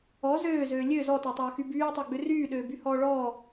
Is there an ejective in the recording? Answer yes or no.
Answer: no